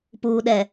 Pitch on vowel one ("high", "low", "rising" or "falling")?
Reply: low